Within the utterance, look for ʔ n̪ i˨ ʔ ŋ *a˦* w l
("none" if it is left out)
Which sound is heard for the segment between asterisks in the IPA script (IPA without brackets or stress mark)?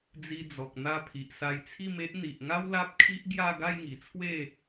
a˦